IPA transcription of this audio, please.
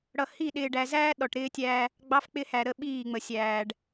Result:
ɽ ʌ˨ h i˦˨ ɗ ɪː˨ ɖ æ˨ z æː˦ ɗ ɔ˨ ʈ ɾ ɪː˦ tʲ æː˦ | ɡ͡b ɑ˦ f k͡p ɪ˦ h æ˨ ɾ ə˦˨ ɓ iː˦˨ ŋ͡m ə˨ sʲ æː˨ ɖ

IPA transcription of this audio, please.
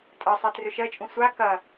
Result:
tʼ ɐ sˤ ɛ t r ʏ ʃ ɜ t͡ʃʼ ũ sʷ a k ɐ

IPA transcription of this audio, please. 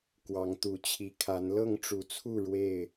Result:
k w ɑ˨˦ ŋ t̪ u˨˦ t͡ɕʰ i˨˦ kʰ a˨˦ n l ɤ˥˨ ŋ ʈ͡ʂ u˨˦ t͡sʰ u˥˨ ɻ w e˥˨ ɪ̯

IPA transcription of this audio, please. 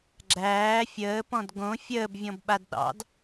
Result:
ɡ͡ǁ æː fʲ əː p ɔ̃ d ɡ õ fʲ əː b vʲ ɔ̃ b ɓ a d ɗ ɑ̰ d

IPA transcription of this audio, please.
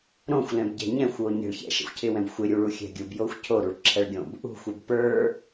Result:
ɾ õ xʷ l ɛ̃ b ɟ ɛ̤ ɲ ɛ̃ xʷ w o ɲ ɛ̤ ɭ ç ɛ̰ ʃ ɛ̰ xʷ cʰ ɪ w ɛ̃ b xʷ ɪ ɾʲ u ɭ u xʲ ɛ̤ ɡʲ u b j o xʷ cʰ o ɾ u ɭ ǁʰ ɛ ɭ ɡʲ õ b | ṳ xʷ ɛ b p ə˞

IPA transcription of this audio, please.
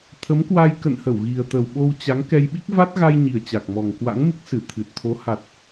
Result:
t̪ʰ ə˨˦ m k w a˧ j k ə̰˧˨ n h ə˧˩ w ɣ i˨˩ ə̯ t̪ ə˨˩ w ɓ o˧ w t͡ɕ a˨˦ ŋ k ɛ˧ j ɓ i˦˥ k̚ v a˦˥ t̚ ɣ a˧ j ɲ i˨˩ ə̯ t͡ɕ a˨˩ k̚ m ɔ˨˩ ŋ k w a̰˧˥ ŋ m ɨ˦˥ k̚ s ɨ˧˩ t̪ʰ ɨ˨˩ t̚ t̪ʰ o˨˦ h a˨˩ t̚

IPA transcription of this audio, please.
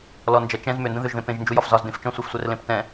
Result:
l ɔ n d͡ʒ ɐ t͡ʃ ɛ̃ z m ʏ n d ə̃ ð ʏ ʒ ð ẽ p ẽ ʒ n d͡ʒ u j ɒ f z ɒ z d ẽ f t͡ʃ ɔ̃ sʷ e f sʷ ɛ r l ẽ p t ɛ̃

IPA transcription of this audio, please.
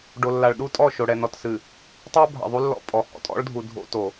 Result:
ɖ o˨ lː a˨ ɭ ɗ u˦ tʼ ɔ˦˨ ʃ o˨ ɽ ɛ˨ n ɔ˨ t s ɨ˨ | tˤ o˦ bʱ a̰˨ ðˤ u˦ lː ɔ̰˦ pʼ ɔ˨ h ɔ̰˦ tʼ ɔ̰˦ ɭ dʱ u˨ dʱ o̰˦ t o˨

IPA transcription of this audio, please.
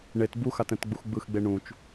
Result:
ɳ e t b u x a t ɛ̃ t ɡ͡b u x ɡ͡b ɯ x ɡ͡b e ɳ ũ t͡ʃ

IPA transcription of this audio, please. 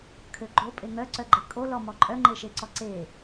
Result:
kʰ ø ɡ͡ǃ o pʼ e ŋ œ ǀ œ ɡ͡ǃ e kʼ o l ɔ m ɔ ǃʼ œ ŋ͡ǃ e ʃ e ǀ ɔ ǀ e

